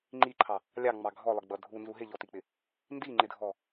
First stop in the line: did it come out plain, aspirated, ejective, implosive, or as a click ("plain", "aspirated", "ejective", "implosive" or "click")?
click